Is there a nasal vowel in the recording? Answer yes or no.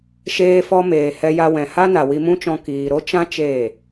yes